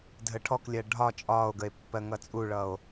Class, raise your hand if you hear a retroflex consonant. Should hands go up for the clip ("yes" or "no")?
yes